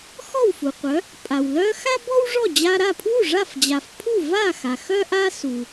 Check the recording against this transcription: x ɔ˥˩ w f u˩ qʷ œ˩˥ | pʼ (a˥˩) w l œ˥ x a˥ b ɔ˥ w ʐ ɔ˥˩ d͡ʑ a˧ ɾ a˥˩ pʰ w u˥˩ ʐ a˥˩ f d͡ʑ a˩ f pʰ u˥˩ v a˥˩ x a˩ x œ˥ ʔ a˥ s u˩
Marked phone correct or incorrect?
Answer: incorrect